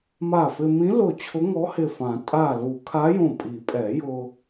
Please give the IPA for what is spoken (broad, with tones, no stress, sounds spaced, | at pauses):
m a˧˩ f ɪ˧ m ĩ˧˥ l ʊ˧˩ t͡ɕʰ ʊ˧˥ ŋ ɔ˧˥ h ɪ˧˩ f ã˨˩˦ tʼ a˧˩ l u˨˩˦ kʰ a˧˥ j õ˧˩ pʼ i˨˩˦ pʼ ɛ˨˩˦ j ʊ˧